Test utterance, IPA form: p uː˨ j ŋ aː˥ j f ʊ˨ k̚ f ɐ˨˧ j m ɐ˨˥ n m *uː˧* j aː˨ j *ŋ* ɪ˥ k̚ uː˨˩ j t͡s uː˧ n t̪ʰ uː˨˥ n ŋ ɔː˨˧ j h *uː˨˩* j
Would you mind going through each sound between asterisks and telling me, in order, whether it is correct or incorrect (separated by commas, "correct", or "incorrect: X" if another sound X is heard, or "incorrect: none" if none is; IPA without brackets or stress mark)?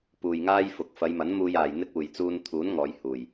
correct, incorrect: n̪, correct